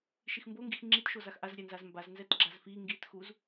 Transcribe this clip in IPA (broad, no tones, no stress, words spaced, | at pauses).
ʃixmboŋɡix ŋ͡ǁitʃo zaxʔazɾʲɛnzaz mbaznzɛt ɡ͡ǁazfi ŋɡitxuz